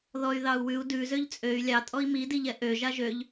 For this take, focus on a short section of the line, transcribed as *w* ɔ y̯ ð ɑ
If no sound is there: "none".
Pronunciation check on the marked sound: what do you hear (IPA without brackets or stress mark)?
ð